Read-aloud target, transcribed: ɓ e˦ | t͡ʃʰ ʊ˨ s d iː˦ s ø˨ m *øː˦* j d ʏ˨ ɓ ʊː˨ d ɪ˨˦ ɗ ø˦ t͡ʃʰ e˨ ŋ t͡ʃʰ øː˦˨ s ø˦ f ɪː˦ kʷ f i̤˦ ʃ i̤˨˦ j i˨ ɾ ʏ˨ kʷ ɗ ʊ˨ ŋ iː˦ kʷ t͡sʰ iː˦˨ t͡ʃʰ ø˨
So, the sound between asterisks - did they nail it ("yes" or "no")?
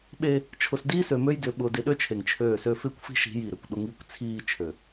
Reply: no